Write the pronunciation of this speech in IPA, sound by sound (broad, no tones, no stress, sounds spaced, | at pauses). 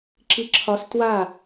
ǁ i ǁʰ ɒ s t w a